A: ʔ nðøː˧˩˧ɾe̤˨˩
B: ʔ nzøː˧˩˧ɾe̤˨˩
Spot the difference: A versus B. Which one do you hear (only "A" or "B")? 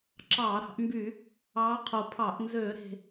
B